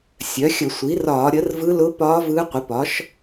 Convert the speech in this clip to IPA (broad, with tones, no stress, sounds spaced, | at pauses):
sʲ œ˩˥ xʲ ə˧˩˧ sʷ i˩˥ r ɒː˧˩˧ ɾʲ ə˩˥ r v ɯ˧˥ l ʊ˧˥ p ɒː˧˥ v ɯː˧˥ qʷ ə˩˥ p ɒ˩˥ ʃ